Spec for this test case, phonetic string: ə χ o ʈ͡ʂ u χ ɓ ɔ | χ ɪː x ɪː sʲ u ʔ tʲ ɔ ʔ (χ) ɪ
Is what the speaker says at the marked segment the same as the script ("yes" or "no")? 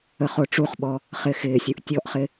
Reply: yes